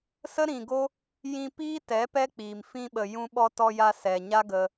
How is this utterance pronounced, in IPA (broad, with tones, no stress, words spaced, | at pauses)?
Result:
sə˦ɾĩ˨ɡo˦ | jĩ˧ piː˦tɛ˨˦ pɛ˦k͡piː˨m fĩ˧ɓə˨ jũ˧ɓɔ˧tɔ˧ja˧ sɛ˨ɲa˦ ɡə˧